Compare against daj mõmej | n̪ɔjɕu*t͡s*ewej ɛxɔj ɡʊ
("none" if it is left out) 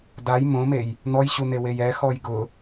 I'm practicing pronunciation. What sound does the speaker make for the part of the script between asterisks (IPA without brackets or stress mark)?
n̪